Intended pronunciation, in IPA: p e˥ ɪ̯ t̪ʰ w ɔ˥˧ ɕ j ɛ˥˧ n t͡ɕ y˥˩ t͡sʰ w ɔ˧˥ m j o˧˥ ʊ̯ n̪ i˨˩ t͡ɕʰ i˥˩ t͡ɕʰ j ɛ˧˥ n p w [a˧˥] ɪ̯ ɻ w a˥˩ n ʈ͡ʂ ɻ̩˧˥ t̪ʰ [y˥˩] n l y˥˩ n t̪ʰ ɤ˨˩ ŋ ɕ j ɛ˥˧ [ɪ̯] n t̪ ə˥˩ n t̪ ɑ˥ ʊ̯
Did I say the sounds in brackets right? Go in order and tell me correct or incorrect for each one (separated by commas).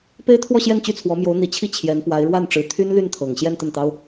correct, incorrect, incorrect